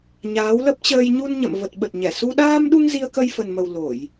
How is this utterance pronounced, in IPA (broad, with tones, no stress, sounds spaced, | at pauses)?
ɲ aː˨˦ w l ə˦˥ p̚ t͡ɕ əː˧ j ɲ u˧ n ɲ ə̰˧˨ m v ə˨˩ t̚ ɓ ə˨˩ t̚ ɲ ɛ˧˩ s u˧ ɗ aː˧ m ɗ u˧ ŋ z i˧ ə̯ k ə˧ j f ə˨˩ n m ə˨˩ w l o˧˩˨ j